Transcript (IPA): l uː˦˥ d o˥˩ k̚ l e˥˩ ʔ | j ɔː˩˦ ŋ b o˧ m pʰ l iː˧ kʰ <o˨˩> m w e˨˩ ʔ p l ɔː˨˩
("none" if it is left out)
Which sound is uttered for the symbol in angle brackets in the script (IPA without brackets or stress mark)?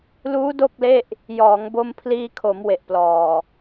o˩˦